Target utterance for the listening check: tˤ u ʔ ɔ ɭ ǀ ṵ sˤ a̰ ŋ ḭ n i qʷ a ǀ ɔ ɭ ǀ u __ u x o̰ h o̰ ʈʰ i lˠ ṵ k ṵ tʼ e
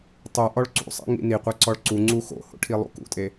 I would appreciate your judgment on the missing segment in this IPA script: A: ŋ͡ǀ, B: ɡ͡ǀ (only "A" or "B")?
A